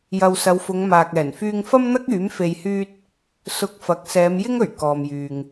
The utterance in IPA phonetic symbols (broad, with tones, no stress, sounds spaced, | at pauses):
j ɐ˨ w s ɐ˨˧ w f ʊ˨˧ ŋ m aː˨ k̚ ɛː˨˩ n f yː˧ ŋ f ɐ˥ m n̪ ɐ˥ k̚ yː˨˥ m f e˧ j h yː˥ t̚ | s ʊ˧ k̚ f ɐ˨˥ k̚ s ɛː˨˧ m j ɪ˥ ŋ ɵ˨˩ ɥ k ɔː˨ m j yː˨ ŋ